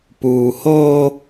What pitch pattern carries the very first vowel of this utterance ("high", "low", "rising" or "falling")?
low